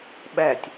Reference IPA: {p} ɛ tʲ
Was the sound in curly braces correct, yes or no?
no